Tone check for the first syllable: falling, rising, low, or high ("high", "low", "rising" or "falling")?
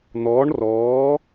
rising